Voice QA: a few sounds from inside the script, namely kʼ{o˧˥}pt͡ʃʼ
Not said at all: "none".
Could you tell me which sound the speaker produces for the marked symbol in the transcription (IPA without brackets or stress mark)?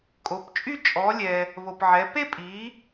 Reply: o˩˧